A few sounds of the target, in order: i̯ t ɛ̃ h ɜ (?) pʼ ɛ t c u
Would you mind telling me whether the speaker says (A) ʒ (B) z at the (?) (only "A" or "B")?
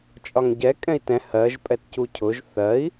A